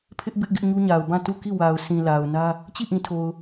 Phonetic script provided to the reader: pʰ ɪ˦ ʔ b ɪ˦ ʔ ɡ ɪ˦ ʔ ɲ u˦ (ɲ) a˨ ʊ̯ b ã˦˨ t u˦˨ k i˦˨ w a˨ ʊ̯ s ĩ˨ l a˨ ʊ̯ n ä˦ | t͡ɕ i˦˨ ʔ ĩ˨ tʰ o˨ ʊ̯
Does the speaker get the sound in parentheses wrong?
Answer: no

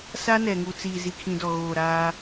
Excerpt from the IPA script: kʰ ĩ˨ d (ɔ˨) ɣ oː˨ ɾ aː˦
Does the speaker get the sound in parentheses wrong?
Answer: no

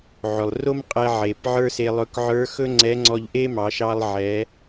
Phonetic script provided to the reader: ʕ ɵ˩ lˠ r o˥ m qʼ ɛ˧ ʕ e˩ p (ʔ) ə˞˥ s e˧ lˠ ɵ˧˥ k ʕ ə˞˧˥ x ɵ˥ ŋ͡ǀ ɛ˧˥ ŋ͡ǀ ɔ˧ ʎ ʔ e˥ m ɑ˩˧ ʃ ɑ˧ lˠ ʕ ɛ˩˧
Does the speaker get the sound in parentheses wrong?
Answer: yes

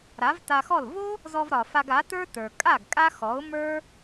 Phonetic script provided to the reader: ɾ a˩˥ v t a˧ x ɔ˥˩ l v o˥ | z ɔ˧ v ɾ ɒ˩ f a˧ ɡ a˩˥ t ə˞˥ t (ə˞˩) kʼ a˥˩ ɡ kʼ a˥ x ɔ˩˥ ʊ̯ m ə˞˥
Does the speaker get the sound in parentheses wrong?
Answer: no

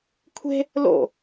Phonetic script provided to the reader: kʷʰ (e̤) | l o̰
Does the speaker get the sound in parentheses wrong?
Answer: no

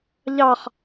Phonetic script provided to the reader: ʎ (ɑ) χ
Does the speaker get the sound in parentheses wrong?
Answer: no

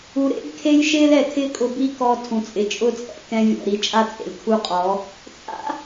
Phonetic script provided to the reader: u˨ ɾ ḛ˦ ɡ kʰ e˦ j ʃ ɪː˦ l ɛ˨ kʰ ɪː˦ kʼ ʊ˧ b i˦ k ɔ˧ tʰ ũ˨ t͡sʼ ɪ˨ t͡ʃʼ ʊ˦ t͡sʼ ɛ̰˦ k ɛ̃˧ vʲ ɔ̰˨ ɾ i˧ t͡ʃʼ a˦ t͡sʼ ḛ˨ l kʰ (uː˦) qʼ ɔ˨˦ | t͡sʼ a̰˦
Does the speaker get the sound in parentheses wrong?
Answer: yes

